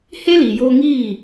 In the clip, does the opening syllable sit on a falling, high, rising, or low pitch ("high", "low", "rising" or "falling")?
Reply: high